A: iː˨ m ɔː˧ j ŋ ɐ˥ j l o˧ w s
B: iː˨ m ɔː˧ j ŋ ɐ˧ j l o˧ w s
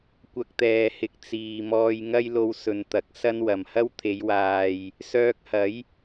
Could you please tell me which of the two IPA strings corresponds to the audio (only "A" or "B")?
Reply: A